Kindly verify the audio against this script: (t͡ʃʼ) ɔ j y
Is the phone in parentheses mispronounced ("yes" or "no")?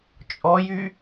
no